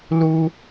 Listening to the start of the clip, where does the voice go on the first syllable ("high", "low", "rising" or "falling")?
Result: high